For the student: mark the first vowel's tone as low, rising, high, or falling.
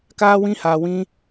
high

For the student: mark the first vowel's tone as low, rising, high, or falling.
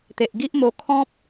low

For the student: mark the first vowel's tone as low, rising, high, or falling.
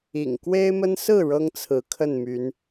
low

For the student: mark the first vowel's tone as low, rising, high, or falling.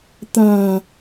low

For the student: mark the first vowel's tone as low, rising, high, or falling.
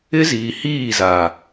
high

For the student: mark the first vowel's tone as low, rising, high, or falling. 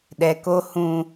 low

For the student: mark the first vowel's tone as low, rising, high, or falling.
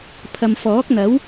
low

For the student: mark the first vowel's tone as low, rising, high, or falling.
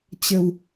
low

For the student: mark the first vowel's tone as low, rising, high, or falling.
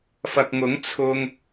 low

